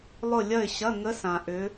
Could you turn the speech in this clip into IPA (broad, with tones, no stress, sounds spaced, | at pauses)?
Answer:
lˠ ʊ˦˨ lʲ ɐ˦˨ ɪ̯ ɕ ɐ˧˥˧ ŋ ə˧˥ s ã˩ ʔ ʏ˩˧